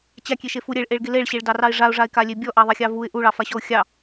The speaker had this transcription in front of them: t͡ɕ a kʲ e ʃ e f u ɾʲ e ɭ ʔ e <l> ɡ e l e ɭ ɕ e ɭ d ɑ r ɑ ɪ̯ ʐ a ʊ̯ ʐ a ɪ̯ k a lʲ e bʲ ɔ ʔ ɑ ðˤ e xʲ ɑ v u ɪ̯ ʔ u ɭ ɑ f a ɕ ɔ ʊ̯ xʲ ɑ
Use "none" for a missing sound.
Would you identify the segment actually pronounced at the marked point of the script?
ɭ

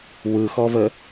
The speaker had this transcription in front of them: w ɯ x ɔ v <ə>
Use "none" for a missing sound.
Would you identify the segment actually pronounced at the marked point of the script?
ə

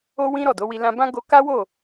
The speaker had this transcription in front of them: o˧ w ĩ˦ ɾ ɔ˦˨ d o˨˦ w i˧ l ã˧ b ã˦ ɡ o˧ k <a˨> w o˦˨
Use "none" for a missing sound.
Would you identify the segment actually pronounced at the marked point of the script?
a˦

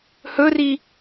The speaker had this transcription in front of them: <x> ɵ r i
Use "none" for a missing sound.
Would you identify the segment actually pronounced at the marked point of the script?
h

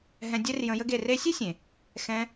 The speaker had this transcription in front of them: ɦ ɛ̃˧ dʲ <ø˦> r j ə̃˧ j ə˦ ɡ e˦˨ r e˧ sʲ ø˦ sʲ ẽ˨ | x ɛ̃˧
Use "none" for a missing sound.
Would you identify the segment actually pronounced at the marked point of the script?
ɛ˦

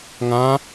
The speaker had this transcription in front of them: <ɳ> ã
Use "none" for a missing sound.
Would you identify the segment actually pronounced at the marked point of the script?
ŋ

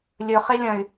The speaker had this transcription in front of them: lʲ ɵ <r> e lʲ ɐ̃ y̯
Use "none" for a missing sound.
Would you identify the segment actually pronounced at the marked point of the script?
χ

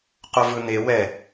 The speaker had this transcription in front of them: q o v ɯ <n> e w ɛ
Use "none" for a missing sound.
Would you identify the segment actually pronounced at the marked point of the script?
n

